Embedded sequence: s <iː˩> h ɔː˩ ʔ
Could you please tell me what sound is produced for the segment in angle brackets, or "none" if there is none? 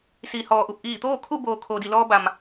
iː˩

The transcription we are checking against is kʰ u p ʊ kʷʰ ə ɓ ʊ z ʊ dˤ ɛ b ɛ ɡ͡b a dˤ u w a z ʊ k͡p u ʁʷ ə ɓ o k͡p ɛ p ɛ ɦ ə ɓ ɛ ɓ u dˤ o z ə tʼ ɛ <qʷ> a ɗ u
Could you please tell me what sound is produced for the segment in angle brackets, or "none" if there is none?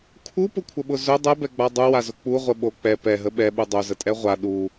ʁʷ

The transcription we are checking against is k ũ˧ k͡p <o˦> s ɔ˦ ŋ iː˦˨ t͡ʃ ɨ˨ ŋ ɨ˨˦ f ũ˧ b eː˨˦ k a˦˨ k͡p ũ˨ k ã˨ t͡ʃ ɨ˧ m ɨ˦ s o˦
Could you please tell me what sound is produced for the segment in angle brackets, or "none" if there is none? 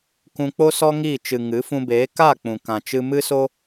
o˦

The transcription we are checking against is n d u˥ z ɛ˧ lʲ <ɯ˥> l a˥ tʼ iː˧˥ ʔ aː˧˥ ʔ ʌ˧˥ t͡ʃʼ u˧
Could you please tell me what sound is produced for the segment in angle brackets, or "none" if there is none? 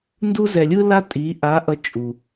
ɯ˥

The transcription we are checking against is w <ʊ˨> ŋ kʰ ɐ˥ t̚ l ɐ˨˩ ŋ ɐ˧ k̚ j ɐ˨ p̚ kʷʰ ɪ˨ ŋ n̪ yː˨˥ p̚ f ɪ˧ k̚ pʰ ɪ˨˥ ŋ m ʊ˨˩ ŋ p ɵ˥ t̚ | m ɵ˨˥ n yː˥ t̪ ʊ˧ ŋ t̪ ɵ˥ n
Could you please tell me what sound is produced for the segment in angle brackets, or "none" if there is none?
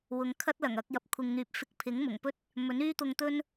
ʊ˨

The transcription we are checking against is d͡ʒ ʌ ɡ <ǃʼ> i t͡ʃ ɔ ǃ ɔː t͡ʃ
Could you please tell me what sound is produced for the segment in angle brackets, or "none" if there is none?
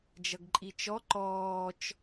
ǃʼ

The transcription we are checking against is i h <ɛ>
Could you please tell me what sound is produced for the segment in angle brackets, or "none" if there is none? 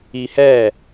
ɛ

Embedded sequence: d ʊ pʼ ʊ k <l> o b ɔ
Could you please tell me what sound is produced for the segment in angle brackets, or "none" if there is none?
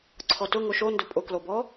l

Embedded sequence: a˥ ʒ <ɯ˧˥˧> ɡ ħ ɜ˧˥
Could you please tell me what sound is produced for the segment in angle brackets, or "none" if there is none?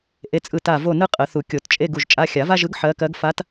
ɯ˧˥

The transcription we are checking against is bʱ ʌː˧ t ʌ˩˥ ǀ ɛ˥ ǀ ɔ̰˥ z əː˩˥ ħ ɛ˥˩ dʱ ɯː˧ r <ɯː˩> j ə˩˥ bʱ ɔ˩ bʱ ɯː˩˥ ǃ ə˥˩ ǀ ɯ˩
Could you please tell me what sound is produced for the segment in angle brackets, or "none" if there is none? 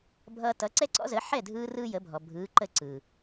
ɯː˥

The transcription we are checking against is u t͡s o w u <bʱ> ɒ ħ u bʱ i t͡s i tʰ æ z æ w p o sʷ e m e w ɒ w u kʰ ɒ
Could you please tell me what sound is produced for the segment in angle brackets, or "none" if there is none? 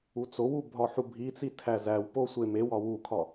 bʱ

